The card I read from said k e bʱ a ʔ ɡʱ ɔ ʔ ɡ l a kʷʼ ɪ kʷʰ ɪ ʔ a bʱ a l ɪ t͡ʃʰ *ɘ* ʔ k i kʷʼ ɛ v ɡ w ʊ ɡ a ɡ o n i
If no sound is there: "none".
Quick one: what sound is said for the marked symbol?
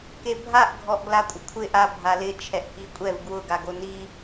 ɛ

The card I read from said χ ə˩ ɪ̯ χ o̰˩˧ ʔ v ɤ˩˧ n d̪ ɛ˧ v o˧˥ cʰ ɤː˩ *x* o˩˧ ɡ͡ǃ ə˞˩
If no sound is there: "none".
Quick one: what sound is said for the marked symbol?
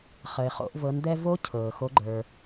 x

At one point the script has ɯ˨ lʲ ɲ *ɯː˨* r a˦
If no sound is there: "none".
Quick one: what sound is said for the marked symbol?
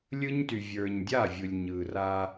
ɯː˨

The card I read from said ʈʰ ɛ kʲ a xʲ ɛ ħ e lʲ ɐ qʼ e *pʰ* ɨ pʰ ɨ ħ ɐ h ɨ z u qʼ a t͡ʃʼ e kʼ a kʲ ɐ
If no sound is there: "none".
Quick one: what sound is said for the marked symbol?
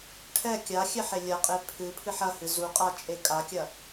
pʰ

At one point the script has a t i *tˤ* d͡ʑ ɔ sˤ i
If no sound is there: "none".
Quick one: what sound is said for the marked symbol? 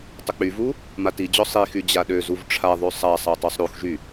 none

